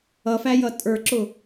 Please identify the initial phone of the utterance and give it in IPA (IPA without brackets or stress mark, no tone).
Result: ʌ